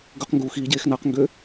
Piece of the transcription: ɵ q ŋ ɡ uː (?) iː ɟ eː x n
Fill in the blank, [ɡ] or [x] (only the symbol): x